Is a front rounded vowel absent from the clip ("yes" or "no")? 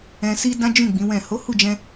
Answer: yes